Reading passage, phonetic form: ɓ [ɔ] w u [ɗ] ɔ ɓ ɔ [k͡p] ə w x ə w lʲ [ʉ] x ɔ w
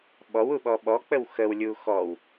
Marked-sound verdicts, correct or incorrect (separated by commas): correct, incorrect, correct, incorrect